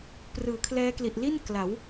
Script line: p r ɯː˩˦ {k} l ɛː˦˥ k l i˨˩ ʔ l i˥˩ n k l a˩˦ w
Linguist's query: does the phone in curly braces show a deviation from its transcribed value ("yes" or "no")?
yes